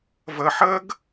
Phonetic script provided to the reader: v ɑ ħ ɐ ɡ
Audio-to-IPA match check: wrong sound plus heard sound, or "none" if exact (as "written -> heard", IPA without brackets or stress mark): ɑ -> ɐ